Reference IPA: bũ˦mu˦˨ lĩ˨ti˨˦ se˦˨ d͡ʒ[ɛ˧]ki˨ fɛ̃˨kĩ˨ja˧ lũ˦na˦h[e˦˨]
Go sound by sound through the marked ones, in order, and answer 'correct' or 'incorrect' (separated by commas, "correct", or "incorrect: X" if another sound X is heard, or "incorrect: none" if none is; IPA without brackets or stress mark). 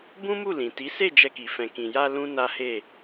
correct, correct